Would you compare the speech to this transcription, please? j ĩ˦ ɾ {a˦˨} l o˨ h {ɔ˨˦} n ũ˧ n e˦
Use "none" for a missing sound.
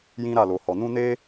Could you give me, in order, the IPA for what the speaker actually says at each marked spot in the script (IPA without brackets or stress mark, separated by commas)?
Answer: a˦˨, ɔ˨